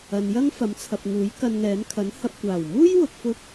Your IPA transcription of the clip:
ɐ˨ n j ɐ˥ ŋ f ɐ˨˥ m t͡sʰ ɐ˨ p̚ ŋ uː˨˥ j k ɐ˧ n ŋ ɛː˨˥ n kʰ ɐ˨˥ n h ɐ˧ p̚ kʷ aː˨˩ w m uː˥ j w ʊ˨ k̚ f ʊ˧ k̚

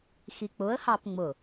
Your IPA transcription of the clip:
x i k͡p ʊ ə̯ h ɑ p ŋ͡m ʊ

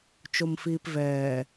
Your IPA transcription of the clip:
t͡ʃ o m f iː p v ɛː

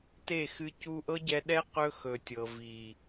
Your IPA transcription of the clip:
t e˦˨ x ɨ˧ c u˧ ʔ ɤ˦ ɟ ɛ˧ ɗ ɛ˦ q ɵ˦ x ɵ˨ tʲ ɤ˨ v i˨

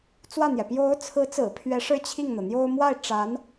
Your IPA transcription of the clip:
t͡s w ä˥˩ n̪ j ɛ˩ p j o˧˥ ʊ̯ t͡sʰ ɹ̩˧˥ t͡s ɹ̩˨˩ pʰ ɥ ɛ˧˥ ʂ ɻ̩˥˧ t͡ɕʰ i˥˩ ŋ n̪ ɤ˩ n̪ j o˥ ʊ̯ m w a˥˩ ɪ̯ ʈ͡ʂ a˧˥ n

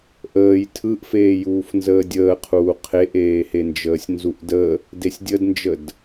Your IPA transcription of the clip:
ʔ əː j tʰ ɯ ʔ f eː j uː f n z əː dʲ əː qʰ uː qʰ e ʔ eː h e n d͡ʒ əː sʲ n z u ʔ d ə | d e sʲ dʲ ə d n d͡ʒ ə d

